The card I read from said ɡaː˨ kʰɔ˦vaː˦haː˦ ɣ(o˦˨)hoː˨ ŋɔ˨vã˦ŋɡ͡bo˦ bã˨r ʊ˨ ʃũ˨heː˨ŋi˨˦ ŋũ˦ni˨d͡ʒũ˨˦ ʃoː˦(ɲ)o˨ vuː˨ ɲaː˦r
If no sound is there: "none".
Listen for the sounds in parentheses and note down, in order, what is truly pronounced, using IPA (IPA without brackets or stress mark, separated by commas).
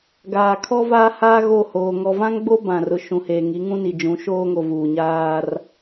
o˦˨, ŋ